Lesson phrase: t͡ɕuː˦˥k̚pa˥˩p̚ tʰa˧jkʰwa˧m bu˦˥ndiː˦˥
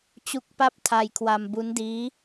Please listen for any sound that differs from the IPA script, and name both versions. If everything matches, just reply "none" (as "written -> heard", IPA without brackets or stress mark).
uː˦˥ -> u˦˥